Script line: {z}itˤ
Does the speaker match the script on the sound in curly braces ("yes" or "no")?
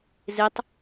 yes